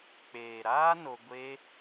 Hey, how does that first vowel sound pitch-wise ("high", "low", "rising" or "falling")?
low